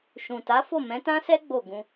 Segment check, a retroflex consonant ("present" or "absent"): absent